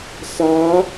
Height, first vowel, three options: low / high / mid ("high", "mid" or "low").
low